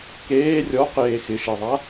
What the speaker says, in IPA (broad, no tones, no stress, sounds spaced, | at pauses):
k eː rʲ ɔ q eː x ɪ ʃ e ðˤ a